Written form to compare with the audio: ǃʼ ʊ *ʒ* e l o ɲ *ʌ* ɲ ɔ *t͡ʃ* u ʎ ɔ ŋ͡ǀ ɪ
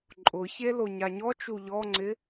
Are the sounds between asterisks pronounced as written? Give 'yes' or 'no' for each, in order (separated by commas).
no, no, yes